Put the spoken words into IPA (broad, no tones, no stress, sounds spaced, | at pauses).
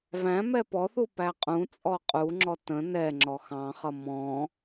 v æ̃ m ɛ p ɔ θ u p æ qʼ ũ t͡sʼ ɔ qʼ u ŋ͡ǁ ɔ t ə̃ n ɛ ŋ͡ǁ ɔ x ɑ̃ χ ʌ m ɔ̃